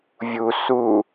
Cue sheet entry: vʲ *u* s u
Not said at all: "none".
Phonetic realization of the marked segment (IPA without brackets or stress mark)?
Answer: u